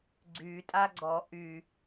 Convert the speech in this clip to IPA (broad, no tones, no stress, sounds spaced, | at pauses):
ɡ͡ǀ y tʼ a ɡ͡ǀ ɔ ʔ y